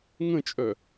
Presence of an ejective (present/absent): present